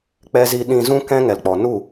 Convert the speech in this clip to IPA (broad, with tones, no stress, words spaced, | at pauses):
k͡pɛ˧zi˧ ɗĩ˨zũ˧ kɛ̃˦ ŋɛ˨lk͡pɔ˨ nu˦˨